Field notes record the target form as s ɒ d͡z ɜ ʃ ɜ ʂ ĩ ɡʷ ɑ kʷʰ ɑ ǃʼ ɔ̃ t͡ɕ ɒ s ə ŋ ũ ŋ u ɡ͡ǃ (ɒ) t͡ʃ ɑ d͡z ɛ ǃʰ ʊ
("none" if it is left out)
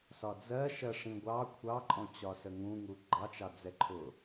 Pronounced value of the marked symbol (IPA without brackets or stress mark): ɑ